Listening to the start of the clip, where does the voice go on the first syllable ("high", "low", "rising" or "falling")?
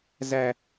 high